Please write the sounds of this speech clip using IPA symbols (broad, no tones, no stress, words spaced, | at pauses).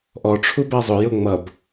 ʔɔ ʈ͡ʂʰubæzˤʊ jʊ ŋ͡mʌb